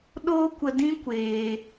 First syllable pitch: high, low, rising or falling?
high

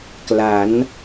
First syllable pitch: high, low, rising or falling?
rising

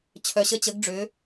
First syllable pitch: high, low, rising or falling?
low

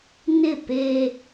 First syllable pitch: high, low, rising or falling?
falling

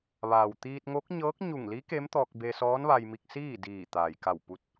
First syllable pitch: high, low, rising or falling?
low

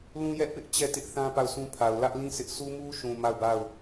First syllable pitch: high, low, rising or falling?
high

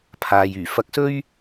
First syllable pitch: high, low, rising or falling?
low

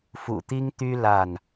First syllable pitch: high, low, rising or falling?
low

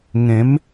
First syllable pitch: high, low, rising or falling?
rising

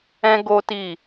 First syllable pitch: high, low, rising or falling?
high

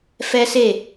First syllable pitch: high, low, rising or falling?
high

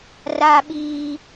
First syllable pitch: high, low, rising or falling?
high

